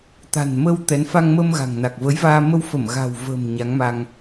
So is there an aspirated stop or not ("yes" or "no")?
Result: no